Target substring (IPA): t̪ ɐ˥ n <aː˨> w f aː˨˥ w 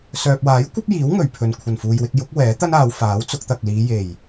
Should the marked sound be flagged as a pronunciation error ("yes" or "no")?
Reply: yes